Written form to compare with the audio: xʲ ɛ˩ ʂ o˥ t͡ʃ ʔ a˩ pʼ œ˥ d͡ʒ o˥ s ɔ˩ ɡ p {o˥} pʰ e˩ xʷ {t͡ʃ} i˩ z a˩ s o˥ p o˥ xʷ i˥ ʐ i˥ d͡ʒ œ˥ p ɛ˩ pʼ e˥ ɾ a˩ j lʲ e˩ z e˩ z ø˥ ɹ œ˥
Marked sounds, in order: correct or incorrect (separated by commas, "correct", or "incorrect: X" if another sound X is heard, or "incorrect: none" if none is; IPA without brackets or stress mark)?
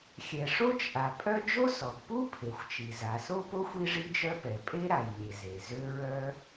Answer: incorrect: u˥, correct